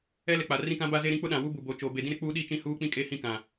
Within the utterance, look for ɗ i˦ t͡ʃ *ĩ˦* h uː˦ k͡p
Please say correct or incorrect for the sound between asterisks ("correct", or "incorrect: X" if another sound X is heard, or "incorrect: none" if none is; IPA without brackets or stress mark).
correct